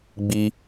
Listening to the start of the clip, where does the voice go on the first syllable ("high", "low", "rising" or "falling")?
high